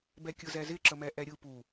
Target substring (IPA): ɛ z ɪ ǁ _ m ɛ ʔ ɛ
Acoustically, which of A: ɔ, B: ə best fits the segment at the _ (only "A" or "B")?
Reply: B